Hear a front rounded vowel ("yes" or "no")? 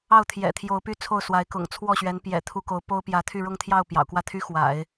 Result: yes